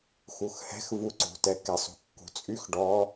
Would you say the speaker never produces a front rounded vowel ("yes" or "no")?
no